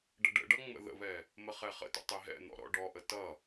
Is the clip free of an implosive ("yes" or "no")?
yes